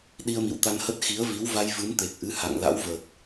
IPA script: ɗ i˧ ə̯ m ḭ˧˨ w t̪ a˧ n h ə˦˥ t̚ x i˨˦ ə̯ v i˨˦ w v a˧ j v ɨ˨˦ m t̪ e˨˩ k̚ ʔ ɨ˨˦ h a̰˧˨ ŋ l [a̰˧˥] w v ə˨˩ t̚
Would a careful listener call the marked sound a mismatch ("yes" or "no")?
no